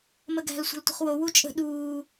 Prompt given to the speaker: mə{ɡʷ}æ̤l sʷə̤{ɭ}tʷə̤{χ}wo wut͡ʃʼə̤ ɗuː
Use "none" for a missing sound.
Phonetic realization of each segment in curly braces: ɡ, l, χ

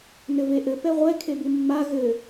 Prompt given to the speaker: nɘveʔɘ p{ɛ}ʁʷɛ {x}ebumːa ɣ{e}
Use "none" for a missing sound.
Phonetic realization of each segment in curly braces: ɛ, kʰ, ɘ

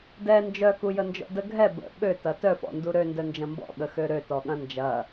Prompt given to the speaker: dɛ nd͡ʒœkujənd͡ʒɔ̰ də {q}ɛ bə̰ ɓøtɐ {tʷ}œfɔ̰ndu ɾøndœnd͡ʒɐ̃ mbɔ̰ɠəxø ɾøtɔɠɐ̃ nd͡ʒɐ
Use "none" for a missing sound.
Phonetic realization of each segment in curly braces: ɡʱ, t

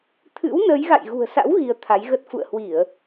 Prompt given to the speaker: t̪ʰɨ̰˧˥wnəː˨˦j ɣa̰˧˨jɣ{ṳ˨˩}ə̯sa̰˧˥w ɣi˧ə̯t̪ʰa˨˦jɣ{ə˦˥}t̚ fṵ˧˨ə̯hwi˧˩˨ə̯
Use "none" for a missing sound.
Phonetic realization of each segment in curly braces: ṳ˨˩, ə˦˥

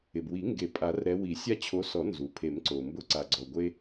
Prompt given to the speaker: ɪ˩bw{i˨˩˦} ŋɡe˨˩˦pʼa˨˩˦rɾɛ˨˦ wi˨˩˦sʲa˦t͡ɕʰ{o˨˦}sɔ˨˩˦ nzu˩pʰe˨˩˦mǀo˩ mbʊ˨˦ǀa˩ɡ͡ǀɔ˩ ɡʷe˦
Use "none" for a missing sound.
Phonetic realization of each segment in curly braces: i˨˩˦, o˨˦

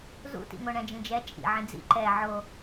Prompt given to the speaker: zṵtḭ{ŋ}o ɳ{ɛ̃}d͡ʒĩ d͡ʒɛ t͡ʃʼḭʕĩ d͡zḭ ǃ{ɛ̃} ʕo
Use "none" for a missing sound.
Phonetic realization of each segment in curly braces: ŋ, ɛ̃, ɛ

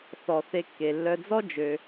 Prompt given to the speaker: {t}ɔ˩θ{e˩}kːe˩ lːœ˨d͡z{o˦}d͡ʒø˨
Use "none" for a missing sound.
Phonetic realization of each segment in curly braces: θ, e˨, ɔ˦

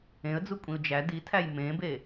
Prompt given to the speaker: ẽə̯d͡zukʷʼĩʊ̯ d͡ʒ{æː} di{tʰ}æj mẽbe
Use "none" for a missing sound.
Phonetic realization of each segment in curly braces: æ, tʰ

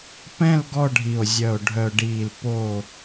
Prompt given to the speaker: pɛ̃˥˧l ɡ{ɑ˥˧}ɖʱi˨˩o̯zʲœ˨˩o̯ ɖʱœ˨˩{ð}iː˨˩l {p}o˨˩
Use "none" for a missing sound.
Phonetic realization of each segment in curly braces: ɔ˥˧, ɖ, p

